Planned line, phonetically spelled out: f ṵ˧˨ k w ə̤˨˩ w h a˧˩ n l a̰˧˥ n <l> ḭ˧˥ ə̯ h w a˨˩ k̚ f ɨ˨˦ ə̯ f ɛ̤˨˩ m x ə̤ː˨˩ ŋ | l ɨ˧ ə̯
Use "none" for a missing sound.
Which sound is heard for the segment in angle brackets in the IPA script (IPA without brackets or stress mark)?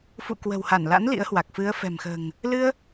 l